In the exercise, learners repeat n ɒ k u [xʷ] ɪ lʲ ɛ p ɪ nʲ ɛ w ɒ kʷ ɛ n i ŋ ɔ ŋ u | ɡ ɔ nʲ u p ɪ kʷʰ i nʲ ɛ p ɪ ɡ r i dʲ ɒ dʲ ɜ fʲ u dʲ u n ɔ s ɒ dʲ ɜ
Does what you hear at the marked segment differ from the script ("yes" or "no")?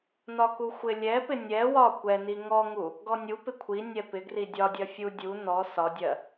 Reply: no